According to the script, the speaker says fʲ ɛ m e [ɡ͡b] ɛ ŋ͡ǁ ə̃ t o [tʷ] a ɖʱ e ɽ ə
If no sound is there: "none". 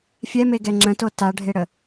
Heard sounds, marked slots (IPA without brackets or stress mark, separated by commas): ɡ, t